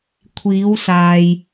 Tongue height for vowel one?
high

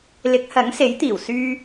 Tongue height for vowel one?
high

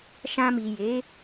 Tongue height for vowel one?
low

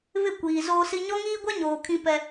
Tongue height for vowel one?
high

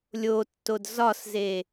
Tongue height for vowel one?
mid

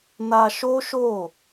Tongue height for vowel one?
low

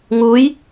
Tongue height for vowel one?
high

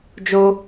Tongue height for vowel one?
mid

